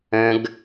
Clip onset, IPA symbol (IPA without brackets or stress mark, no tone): ə̃